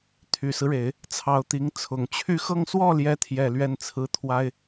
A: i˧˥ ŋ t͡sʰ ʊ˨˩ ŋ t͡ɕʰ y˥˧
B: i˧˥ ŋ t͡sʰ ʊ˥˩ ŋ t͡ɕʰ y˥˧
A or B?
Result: A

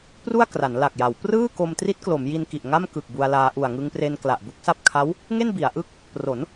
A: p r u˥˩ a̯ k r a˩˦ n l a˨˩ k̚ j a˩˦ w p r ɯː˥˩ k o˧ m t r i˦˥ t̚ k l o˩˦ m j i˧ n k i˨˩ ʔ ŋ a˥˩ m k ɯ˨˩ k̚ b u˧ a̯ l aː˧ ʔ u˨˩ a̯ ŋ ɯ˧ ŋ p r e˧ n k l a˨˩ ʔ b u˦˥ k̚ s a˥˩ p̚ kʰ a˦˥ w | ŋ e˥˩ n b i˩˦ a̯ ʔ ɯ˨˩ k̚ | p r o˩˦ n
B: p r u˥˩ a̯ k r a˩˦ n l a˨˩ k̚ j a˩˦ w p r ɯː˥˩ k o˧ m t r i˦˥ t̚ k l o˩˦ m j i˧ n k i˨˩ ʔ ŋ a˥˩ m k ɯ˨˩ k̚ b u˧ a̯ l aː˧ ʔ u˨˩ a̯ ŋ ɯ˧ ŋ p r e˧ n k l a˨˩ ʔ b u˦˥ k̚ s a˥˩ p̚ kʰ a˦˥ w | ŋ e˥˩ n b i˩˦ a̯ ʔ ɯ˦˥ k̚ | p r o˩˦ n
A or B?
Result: B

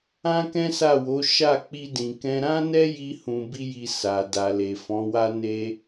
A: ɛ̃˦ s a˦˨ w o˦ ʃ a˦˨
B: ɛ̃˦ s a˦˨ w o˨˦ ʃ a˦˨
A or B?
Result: B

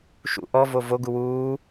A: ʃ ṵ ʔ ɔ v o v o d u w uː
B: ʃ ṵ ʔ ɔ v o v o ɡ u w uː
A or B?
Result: B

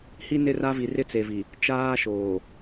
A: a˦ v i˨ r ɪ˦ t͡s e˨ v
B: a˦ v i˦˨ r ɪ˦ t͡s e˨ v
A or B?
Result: A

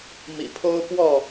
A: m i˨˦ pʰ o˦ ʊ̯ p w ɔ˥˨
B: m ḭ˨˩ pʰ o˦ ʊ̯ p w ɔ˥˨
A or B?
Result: B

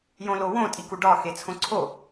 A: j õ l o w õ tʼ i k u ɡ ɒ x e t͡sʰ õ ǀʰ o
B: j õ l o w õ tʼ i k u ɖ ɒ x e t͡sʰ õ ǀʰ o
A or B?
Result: B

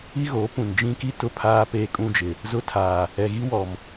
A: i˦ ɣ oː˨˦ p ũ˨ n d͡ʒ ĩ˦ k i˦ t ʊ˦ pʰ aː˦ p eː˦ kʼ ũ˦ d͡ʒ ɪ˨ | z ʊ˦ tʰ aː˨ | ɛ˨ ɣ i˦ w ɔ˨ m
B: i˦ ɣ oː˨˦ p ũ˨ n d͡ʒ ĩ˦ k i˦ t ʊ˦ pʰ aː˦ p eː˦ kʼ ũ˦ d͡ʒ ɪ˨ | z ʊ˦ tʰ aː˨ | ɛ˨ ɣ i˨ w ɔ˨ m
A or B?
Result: A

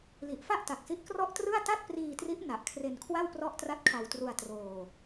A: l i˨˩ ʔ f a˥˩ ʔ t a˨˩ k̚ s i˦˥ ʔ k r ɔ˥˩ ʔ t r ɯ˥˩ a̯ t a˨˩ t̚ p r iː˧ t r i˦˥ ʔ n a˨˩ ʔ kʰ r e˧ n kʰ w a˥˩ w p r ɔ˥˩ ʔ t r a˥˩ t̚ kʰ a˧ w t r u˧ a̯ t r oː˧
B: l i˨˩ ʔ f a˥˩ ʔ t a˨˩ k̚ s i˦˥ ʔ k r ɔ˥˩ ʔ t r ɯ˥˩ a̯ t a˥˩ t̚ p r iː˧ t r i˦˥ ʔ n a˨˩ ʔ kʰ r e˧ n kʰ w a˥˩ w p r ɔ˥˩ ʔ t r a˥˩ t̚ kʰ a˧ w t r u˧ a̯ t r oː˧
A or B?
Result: B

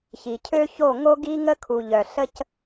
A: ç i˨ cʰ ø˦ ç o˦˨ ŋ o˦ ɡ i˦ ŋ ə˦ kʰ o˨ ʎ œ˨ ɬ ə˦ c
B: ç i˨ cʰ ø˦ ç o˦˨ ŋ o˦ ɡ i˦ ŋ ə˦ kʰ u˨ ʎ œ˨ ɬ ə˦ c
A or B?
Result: B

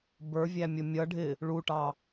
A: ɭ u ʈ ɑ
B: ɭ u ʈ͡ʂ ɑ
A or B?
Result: A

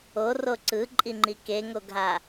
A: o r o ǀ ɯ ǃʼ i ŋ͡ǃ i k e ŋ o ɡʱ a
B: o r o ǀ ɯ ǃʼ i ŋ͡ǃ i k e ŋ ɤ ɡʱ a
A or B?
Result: A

